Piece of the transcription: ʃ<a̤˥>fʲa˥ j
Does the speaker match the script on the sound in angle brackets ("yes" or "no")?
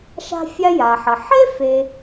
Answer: yes